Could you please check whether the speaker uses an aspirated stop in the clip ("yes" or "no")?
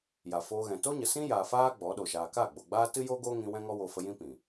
no